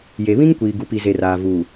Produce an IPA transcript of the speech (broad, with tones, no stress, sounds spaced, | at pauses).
j e˨ β ĩ˦ ŋ kʷ iː˨ ɡ u˨ p i˨ z e˨ r aː˨ v uː˨